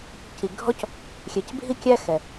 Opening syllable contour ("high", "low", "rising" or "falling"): low